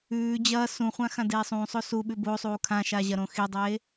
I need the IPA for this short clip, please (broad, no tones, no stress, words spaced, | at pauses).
ʉː d͡ʑɐː sũχʷã xãdeːsˤũsˤo suɓʉ bosˤuː kʰãʃa ʑɐɾõxidˤeː